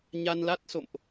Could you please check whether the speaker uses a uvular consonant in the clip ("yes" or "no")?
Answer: no